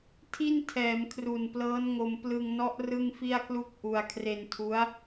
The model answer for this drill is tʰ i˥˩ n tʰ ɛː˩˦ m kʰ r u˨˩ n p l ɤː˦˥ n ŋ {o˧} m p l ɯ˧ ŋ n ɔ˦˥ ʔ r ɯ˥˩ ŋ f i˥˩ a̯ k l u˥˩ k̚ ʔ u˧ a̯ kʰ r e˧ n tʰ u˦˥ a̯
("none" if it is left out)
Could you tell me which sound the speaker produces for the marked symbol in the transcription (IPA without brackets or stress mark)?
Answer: o˧